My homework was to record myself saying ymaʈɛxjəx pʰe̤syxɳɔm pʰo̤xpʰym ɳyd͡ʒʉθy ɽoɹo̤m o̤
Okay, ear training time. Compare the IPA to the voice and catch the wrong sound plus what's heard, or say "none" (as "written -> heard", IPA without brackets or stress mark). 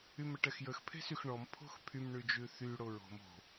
a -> ə